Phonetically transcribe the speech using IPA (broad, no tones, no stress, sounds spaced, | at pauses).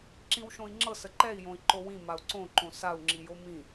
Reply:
ǁ ĩ w ʃ õ i̯ ŋ͡ǁ ɤ s ə ǃ ɛ i̯ j õ i̯ ǃ o w ĩ m a u̯ ǀ õ ǃ õ s a u̯ ŋ͡ǁ i j o m ĩ